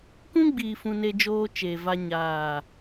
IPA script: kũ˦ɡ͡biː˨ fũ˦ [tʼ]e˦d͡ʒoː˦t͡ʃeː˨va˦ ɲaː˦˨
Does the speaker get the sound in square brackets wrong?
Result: yes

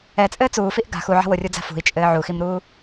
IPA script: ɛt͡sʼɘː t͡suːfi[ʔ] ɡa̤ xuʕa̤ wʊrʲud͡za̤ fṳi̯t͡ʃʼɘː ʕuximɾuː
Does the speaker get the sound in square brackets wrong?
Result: no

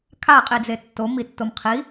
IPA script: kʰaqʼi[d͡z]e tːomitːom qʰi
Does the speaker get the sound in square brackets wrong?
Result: no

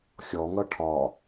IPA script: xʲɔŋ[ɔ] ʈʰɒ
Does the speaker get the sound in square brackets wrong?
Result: yes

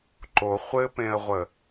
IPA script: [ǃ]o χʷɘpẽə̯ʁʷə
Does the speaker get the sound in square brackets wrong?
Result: no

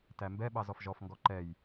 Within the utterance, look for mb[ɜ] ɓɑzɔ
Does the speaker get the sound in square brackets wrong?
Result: yes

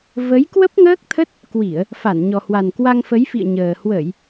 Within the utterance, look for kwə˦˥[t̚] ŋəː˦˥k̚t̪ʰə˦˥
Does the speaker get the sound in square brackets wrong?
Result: yes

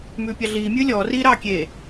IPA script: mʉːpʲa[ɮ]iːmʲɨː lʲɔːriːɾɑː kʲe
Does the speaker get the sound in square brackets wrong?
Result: no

